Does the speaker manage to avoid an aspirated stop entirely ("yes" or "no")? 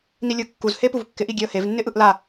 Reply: yes